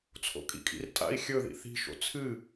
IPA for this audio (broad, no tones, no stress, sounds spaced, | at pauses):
t͡sʰ o̰ kʼ ḭ kʼ ḭ r tʼ a̰ i̯ xʲ ɵ ð ḭ θ i̤ ʃ o̰ t͡sʰ ɨ